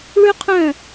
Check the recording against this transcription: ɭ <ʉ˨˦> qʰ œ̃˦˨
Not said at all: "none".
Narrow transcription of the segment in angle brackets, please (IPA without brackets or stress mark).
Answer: ʉ˦